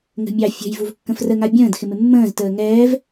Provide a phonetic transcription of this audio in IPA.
ŋ ə̤ mʲ ɑ fʲ ə̤ j v u v kː ə̃ f r ə ŋ a bʲ ə̃ː d x ɪ m ɪ mː ə̃ː z t əː ŋ ɛː v

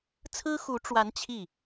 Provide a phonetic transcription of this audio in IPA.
t͡sʰ ɹ̩˥ x u˧˥ ʈ͡ʂ w a˧˥ n t͡ɕʰ i˥˩

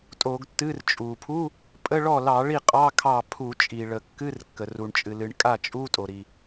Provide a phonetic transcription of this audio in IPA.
tʼ o˧˩˧ ɡ tː ɨ˧˥˧ r t͡ʃʼ u˩ pʰ u˧˥˧ | pʼ ə˧˥˧ ɭ ɔ˥˩ l ɑ˧˩˧ ɭ i˥˩ qʼ ɑ˧˥˧ kʰ ɑ˥˩ pʰ u˧˩˧ t͡ʃʼ i˩ ɭ ə˩ kː ɨ˧˥˧ r kː ə˩ r u˩ ɳ t͡ʃʼ ɨ˩ l ɨ˩ ɳ kʼ a˥˩ t͡ʃʼ u˧˥˧ tʼ o˩ ɾ i˩

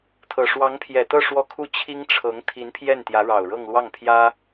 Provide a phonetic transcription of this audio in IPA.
t̪ʰ ɤ˨˩ ʂ w ɑ˧˥ ŋ pʰ j ɛ˨˩ t̪ ɤ˥˧ ʂ w ɔ˥˧ kʰ u˥˩ t͡ɕʰ i˥ ŋ ʈ͡ʂʰ ɤ˧˥ ŋ t̪ʰ i˧˥ n pʰ j ɛ˥˩ n t̪ j ä˧˥ ɻ ɑ˨˩ ʊ̯ ɻ ɤ˥˧ ŋ l w ɑ˥˩ ŋ pʰ j ä˥

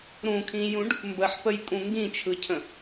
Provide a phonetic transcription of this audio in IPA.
ɾ ũ kʰ ĩ j ũ ɖ | m b ə ħ p ə j kʼ ũ ŋ ɡ ĩ t͡ʃʰ ɯ cʰ ə̃

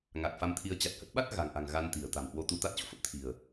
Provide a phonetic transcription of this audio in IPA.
ŋ a˨˩ k̚ f a˧ m t̪ʰ i˧ ə̯ t͡ɕ a˨˩ t̚ h ə˦˥ t̚ ɓ a˦˥ t̚ ɣ a̤˨˩ ŋ ʔ a̤˨˩ ŋ ɣ a˧ n t̪ i̤˨˩ ə̯ t̪ a̤˨˩ m h w o˧ t̪ u˧ t̪ a˦˥ t̚ t͡ɕ o̰˧˨ f ə˦˥ p̚ t̪ʰ i̤˨˩ ə̯

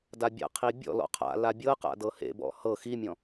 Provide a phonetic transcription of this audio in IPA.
d a bʲ a̰ qʰ i bʲ ɔ̰ l ɔ̰ qʰ a̰ l a bʲ ɤ q a̰ d ɤ h ḛ b ɔ̰ h ɤ x i mʲ ɔ̃

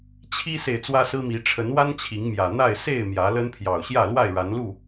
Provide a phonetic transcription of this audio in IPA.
t͡ɕʰ i˦ s e˨ ɪ̯ t͡s w ä˦ s ɹ̩˦ m i˨˦ ʈ͡ʂʰ ə˨˦ n w a˦ n t͡ɕʰ i˨˦ ŋ m j ä˨˩ n̪ a˥˨ ɪ̯ s e˥˨ ɪ̯ m j ä˨˦ l ə˦ n pʰ j ɑ˨˩ ʊ̯ ɕ j ä˥˨ l w a˥˨ ɪ̯ ɻ a˨˦ n l u˥˨

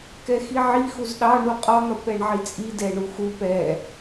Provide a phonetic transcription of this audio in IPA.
k ɛ x i ʕ i x u z ɗ ɑ ɳ u qʼ ɒ n̪ ɒ p ɛ ɳ ʕ i t͡sʼ i d ɛ ɳ u x u p ɛ

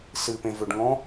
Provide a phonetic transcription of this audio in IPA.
s ɨ p ẽ v ʏ ɖ ŋ ɔ̃

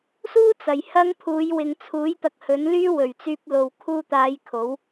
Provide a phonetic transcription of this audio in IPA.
s uː˥ t͡s ɐ˨ j h ɐ˥ ŋ pʰ uː˨˧ j w ɪ˨ ŋ t͡sʰ uː˨˥ j t̪ ɐ˧ k̚ h ɵ˨˥ n l yː˥ w ɵ˨˩ ɥ t͡s yː˧ p̚ l o˨ w kʰ uː˧ t̪ aː˨˧ j kʰ o˨˥ w

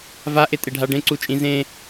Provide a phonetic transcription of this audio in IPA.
v a ʔ e tʼ e ɖʱ a ɖ ẽ ǀ u t͡ʃʼ ĩ z ẽ

